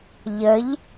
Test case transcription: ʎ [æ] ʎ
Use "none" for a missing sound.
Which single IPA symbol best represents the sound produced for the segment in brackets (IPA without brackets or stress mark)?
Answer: ə